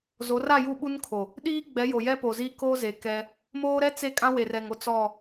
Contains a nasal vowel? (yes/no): yes